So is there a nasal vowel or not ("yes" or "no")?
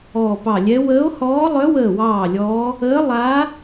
no